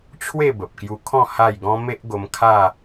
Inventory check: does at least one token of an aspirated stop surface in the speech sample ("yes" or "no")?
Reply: yes